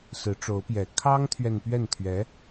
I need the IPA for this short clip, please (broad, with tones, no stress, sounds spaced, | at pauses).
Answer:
s ɹ̩˧˥ ʈ͡ʂ o˧˥ ʊ̯ p j ɛ˨˩ kʰ ɑ˥ ŋ t̪ʰ ɥ ɛ˨ n p ɥ ɛ˥˩ n t̪ʰ ɥ ɛ˧˥